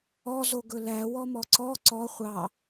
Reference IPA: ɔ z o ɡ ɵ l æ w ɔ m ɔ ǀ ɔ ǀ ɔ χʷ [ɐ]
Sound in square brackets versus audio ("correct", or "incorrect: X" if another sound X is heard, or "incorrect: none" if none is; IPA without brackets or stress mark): incorrect: ɑ